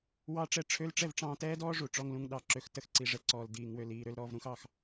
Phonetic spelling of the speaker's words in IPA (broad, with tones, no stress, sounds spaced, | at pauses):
w ɑ˦ ʈ͡ʂ ɛ˧ ʈ͡ʂʰ ø˦ l ʈ͡ʂ ɛ˦˨ v ʈ͡ʂ ɑ̃ː˧ t ɛː˦ d ɔː˦ ʐ u˨ ʈ͡ʂ ɔ˧ ŋ l ũ˧ ŋ ɗ ɑ˨ ǁ ø˨ x t ə˧ x ǀ i˨ ʐ ɛ˧ ǀ ɔː˨ l d iː˨ ŋ w ø˨ l iː˨ ɾ ø˦ l ɾ ɔː˧ v ɾ ũ˧ x ɑ˧ x